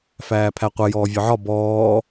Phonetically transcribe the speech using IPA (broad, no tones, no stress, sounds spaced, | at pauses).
f æː pʰ æ qʷ ɛ j ɔː vʲ ɒ ʕ ɒ b ɔː